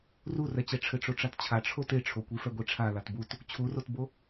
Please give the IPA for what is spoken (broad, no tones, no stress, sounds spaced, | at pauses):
r u r ɛ t͡ɕ ɛ ʈ͡ʂʰ ɘ ʈ͡ʂ o ʈ͡ʂ a t t͡ɕʰ a ʈ͡ʂʰ o t e ʈ͡ʂʰ o kʷ i f ɛ ɡʷ i ʈ͡ʂʰ a l a t b u t | t͡ɕʰ u r o t b o